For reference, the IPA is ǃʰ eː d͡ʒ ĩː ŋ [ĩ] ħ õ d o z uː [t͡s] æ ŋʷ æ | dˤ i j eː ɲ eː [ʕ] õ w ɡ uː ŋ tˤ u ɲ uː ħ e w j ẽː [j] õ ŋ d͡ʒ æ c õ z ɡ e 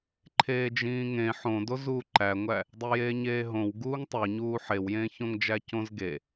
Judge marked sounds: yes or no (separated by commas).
no, no, no, no